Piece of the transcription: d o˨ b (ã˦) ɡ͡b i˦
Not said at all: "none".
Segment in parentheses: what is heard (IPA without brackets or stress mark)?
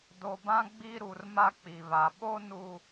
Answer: ã˦